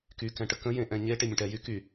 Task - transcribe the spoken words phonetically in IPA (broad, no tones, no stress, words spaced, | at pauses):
ky kɛ̃ʈəkə̃ jẽʔɛ̃ɲe ʈemʲə̃ʈɛ jy ky